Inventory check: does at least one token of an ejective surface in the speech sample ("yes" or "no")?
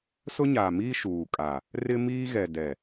yes